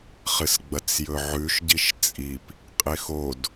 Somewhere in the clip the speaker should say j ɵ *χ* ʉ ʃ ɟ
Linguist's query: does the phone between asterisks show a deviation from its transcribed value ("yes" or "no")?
yes